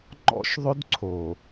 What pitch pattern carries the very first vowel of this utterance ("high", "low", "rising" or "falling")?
high